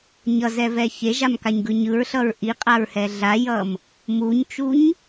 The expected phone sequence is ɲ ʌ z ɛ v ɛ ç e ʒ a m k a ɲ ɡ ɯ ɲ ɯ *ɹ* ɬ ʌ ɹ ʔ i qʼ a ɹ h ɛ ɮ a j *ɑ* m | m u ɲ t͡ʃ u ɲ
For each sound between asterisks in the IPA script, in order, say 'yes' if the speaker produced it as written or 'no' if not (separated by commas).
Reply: yes, no